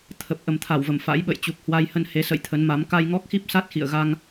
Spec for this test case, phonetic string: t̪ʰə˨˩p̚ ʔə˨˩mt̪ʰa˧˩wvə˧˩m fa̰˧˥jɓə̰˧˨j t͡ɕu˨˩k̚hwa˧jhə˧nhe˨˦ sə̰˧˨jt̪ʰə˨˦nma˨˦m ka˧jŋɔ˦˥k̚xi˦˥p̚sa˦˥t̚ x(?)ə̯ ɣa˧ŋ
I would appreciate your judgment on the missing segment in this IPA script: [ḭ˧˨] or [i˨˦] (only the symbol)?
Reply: ḭ˧˨